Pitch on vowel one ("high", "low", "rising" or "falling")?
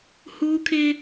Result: high